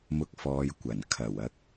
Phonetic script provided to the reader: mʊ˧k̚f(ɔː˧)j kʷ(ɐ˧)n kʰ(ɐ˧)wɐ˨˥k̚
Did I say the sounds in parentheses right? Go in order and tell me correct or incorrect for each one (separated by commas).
incorrect, incorrect, incorrect